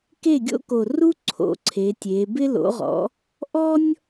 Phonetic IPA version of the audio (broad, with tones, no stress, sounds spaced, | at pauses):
k e˥˩ ɡʲ o̰˥ k o˨˩ r u˥ ǀʰ o̰˩˥ ǀʰ e˩˧ tʲ e˩˧ b ɪ˥ l o̰˩˥ ʁ ɔ̰˩˥ | ʔ ɔ˥ nʲ